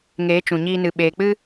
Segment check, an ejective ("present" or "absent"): absent